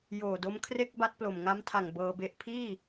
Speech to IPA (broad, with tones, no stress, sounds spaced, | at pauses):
j oː˨˩ d o˦˥ m kʰ r e˥˩ k̚ b a˦˥ t̚ p l o˨˩ m ŋ a˦˥ m tʰ a˨˩ ŋ b ɤː˧ b e˦˥ ʔ pʰ iː˥˩